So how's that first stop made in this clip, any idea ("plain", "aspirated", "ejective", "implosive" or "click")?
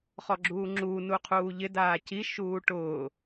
click